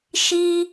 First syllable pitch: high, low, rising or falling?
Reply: high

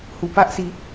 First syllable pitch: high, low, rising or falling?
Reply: low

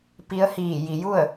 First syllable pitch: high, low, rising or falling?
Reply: rising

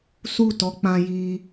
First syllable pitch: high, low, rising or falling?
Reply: falling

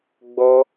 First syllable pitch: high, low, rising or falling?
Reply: high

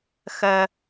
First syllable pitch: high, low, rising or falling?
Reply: high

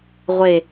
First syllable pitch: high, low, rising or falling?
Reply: low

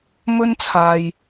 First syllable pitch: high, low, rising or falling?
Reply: high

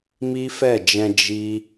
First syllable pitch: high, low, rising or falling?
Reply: high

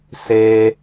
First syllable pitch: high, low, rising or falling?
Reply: low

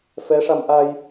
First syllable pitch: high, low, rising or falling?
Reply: rising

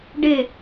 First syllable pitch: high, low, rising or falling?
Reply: falling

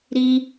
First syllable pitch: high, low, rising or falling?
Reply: high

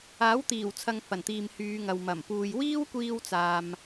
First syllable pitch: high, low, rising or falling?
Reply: rising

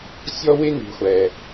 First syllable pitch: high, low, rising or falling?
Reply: high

